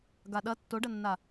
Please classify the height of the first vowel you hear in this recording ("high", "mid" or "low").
low